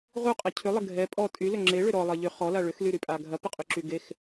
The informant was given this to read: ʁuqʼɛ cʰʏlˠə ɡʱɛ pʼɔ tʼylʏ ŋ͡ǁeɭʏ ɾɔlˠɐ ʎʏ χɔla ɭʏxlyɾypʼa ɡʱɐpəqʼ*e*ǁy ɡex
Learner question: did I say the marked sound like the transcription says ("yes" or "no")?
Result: no